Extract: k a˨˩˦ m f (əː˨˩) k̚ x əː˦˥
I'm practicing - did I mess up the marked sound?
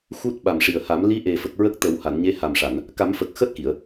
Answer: no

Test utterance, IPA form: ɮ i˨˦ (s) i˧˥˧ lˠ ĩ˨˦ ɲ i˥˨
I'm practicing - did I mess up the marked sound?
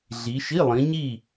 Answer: yes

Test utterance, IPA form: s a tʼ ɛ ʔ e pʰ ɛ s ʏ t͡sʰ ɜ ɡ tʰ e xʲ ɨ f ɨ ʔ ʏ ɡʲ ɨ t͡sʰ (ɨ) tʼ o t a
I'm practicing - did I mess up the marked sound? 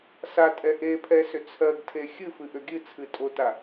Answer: no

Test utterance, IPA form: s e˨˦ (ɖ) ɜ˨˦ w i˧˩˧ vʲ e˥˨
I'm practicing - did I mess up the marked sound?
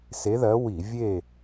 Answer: yes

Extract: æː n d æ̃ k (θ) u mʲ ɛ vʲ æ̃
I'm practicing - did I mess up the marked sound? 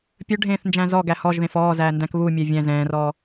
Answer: yes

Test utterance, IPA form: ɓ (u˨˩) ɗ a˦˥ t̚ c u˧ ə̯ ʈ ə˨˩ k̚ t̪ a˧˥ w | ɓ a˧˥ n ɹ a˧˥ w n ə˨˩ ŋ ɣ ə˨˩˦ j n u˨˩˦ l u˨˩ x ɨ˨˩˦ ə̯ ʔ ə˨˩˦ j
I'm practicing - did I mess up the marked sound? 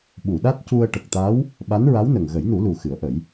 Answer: yes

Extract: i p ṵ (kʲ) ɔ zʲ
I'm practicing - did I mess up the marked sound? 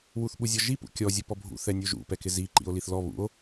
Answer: no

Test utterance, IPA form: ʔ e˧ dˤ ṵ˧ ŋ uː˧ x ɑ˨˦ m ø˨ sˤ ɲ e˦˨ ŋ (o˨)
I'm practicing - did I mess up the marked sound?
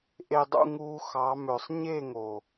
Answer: no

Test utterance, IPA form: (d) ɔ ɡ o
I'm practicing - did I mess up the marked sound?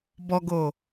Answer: yes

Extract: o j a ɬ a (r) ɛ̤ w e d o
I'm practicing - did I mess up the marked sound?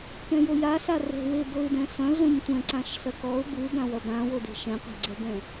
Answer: no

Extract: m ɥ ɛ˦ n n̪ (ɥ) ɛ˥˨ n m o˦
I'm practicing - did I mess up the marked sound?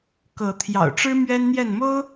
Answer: yes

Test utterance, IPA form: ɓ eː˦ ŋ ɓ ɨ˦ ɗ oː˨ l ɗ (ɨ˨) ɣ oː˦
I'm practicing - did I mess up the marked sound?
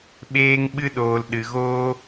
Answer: no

